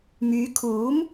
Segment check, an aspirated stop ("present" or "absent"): present